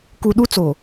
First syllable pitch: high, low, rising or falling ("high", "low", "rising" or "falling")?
low